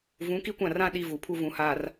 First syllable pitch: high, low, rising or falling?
rising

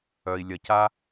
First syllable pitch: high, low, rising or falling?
low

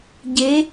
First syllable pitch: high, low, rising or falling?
rising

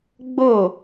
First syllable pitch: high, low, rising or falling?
falling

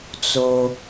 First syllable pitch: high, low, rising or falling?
low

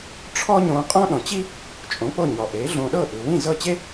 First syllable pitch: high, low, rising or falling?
high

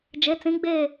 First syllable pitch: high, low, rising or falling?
rising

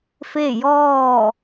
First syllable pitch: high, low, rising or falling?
falling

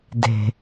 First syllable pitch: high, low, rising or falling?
low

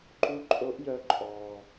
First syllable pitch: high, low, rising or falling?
rising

